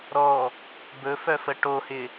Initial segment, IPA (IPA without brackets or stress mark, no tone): ɾ